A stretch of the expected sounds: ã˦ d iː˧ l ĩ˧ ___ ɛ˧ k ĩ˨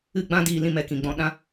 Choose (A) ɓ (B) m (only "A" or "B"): B